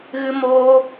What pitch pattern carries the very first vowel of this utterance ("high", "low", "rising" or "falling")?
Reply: high